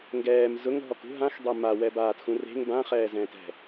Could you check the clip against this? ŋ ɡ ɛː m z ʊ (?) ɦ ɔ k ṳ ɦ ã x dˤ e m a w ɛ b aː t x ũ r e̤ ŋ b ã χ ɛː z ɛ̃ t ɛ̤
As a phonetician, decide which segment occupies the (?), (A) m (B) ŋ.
B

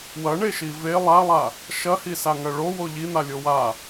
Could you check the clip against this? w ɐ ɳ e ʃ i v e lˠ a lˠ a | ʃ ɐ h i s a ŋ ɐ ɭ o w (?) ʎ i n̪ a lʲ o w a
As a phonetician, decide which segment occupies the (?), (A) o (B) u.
A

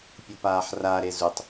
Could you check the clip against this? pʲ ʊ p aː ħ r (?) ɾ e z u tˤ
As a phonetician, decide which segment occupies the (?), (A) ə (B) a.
B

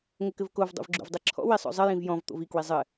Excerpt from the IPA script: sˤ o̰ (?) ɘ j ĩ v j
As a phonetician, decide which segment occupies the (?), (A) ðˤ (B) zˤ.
B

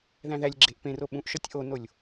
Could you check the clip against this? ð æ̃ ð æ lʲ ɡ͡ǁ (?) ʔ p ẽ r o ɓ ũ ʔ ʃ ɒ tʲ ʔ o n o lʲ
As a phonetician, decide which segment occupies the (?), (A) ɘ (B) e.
B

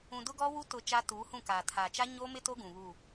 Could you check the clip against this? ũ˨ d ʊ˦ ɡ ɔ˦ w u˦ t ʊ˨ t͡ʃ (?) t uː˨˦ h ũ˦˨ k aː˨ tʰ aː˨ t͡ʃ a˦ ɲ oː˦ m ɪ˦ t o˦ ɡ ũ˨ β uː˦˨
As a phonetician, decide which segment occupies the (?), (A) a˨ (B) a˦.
B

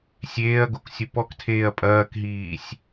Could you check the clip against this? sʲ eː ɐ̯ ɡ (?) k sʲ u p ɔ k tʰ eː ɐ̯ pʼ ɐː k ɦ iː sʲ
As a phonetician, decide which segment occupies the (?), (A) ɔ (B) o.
B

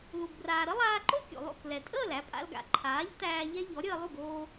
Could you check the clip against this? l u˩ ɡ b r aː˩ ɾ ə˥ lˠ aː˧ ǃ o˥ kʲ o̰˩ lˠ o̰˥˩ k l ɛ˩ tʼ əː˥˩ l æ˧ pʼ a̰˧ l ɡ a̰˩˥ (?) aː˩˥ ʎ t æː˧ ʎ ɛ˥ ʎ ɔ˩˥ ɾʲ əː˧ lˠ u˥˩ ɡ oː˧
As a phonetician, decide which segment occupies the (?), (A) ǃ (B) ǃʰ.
B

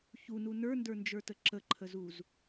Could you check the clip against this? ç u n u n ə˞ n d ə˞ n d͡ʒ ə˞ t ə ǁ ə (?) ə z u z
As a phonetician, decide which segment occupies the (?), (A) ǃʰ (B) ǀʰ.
A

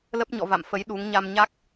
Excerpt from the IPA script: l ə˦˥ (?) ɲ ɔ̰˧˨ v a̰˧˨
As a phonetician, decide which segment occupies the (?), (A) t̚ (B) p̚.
B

